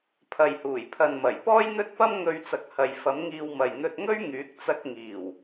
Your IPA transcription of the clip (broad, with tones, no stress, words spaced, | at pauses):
pʰɐ˨jhuː˨˩jpʰɐ˨nmɐ˨˩j pɔː˥jn̪ɵ˥t̚pɐ˥mŋɵ˧ɥ t͡sɐ˨k̚hɐ˨j fɐ˨˥mŋiː˧wmɐ˨j n̪ɵ˧t̚ŋɵ˥ɥ ŋyː˨˥k̚t͡sɐ˧k̚ ŋiː˨˩w